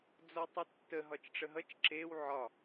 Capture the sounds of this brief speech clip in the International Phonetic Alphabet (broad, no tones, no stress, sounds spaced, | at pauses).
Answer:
d͡z ɔ tˤ u tː ə ɦ ɒ t͡ʃ ʈ͡ʂ ə ɦ ʌ t͡ʃ ǁ e w ʕ ɒ